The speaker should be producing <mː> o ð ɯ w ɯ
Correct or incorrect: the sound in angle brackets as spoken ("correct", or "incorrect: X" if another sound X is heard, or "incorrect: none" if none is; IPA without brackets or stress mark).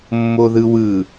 correct